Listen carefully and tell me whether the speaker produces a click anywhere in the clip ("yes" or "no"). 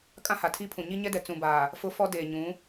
no